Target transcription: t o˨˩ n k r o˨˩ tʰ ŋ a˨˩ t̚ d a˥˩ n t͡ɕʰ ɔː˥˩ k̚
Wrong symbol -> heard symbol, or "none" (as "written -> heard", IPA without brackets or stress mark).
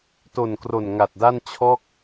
tʰ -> n